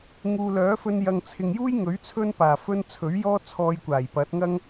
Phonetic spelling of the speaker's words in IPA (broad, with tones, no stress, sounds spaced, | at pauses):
ŋ uː˨ l œː˨˥ f ɵ˧ n j ɐ˨ ŋ t͡sʰ ɪ˨ ŋ j uː˥ j ŋ ɵ˨˥ ɥ t͡sʰ ɵ˥ n p aː˨˩ f ɵ˧ n t͡sʰ ɵ˨˥ ɥ j ɔː˥ t͡sʰ ɔː˧ j kʷ aː˨˩ j p ɐ˨˥ t̚ ŋ ɐ˥ ŋ